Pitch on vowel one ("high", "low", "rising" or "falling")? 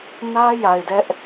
high